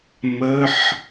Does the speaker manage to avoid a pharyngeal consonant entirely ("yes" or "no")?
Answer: no